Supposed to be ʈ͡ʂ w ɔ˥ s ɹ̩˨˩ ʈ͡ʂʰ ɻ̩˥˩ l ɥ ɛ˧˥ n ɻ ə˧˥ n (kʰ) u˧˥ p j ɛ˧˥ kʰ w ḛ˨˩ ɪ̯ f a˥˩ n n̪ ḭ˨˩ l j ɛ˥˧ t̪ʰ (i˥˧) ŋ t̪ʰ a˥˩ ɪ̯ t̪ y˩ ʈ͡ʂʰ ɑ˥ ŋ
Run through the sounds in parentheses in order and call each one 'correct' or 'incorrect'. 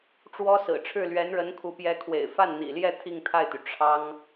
correct, correct

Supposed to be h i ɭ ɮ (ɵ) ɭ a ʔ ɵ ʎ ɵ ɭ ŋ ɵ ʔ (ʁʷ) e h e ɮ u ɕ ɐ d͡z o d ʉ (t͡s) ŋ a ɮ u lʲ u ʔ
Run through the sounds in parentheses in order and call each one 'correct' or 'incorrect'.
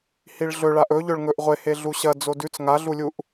correct, correct, correct

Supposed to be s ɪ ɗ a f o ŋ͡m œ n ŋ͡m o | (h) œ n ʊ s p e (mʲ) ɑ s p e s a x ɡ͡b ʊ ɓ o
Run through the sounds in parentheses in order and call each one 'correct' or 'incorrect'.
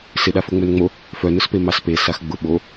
incorrect: f, incorrect: m

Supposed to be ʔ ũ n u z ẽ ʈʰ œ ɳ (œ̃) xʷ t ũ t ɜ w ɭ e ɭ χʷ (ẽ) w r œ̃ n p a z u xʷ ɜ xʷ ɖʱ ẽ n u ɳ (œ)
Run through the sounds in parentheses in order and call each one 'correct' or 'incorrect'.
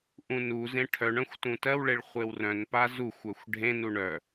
correct, incorrect: e, correct

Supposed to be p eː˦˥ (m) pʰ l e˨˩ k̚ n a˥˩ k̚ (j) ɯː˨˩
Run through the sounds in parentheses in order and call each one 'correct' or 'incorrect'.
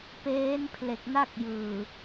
incorrect: n, correct

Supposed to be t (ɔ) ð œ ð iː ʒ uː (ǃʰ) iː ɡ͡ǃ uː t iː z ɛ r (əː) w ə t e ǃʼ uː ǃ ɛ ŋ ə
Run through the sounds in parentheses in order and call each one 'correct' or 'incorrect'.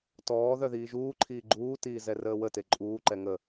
incorrect: ɔː, correct, correct

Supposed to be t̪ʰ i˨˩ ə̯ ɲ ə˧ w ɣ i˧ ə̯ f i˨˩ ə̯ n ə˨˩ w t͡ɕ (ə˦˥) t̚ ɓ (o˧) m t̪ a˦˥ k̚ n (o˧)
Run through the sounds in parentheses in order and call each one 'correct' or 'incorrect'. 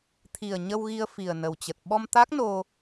incorrect: ə˨˩, incorrect: ɔ˧, correct

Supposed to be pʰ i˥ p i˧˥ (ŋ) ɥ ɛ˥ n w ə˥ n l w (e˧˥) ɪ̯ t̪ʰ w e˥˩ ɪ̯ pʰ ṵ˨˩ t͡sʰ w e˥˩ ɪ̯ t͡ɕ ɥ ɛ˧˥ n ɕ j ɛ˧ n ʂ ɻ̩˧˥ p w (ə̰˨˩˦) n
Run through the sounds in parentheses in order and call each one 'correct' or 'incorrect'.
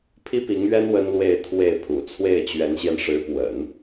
correct, incorrect: e˥˧, correct

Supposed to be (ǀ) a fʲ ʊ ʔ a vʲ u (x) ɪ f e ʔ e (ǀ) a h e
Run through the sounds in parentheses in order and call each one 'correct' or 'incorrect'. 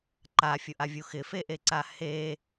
incorrect: ǃ, correct, correct

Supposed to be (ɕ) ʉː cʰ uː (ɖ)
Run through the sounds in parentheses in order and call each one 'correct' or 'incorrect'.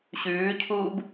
correct, incorrect: b

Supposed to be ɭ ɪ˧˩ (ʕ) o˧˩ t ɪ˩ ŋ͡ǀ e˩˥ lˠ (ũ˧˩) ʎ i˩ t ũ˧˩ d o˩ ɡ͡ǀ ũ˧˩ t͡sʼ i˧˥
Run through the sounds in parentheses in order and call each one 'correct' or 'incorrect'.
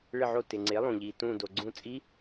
correct, incorrect: ũ˩

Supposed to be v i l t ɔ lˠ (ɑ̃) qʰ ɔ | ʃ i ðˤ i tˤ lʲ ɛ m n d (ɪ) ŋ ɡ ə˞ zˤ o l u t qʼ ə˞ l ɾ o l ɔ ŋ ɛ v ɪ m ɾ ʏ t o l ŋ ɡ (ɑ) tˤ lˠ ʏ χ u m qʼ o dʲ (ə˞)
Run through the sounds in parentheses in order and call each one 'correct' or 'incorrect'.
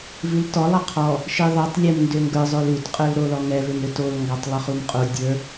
incorrect: ɑ, incorrect: ʏ, correct, correct

